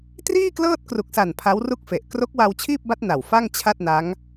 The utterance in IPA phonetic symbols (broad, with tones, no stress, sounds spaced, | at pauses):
t r iː˥˩ k l ɤː˥˩ t̚ k r u˨˩ k̚ s a˨˩ n pʰ a˦˥ w r u˥˩ k̚ f e˨˩ ʔ k r o˦˥ k̚ w a˧ w t͡ɕʰ iː˥˩ p̚ b a˦˥ t̚ n a˨˩ w f a˥˩ ŋ t͡ɕʰ a˥˩ t̚ n a˦˥ ŋ